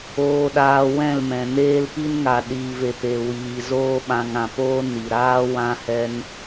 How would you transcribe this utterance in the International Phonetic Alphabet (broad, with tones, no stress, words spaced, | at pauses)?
oː˧ɗaː˧wɛ̃˦˨lmɛ̃˨ neː˧lpi˧nŋa˨ ɗiː˨ve˨ pe˨wiː˨zoː˧ ɓã˧ŋã˧poː˦ ni˨ɾaː˦ wã˧ hɛ˧n